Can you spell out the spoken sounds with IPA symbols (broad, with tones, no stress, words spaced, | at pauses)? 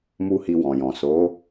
mu˦hi˧wɔ̃˨jɔ̃˨ so˨˦